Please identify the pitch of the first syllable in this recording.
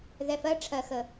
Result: low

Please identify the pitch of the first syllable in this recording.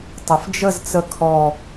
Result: low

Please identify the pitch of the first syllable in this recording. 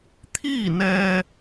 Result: falling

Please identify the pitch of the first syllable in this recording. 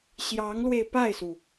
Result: rising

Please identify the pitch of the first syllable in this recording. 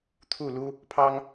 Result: falling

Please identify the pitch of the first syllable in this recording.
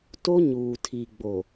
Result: high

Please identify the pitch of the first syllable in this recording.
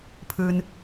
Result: low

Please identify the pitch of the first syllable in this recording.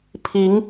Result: rising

